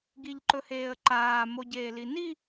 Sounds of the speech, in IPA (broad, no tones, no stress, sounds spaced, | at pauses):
ɡ i ʎ ǃ ɵ h eː ə̯ ǃ aː m o ɟ eː l i n i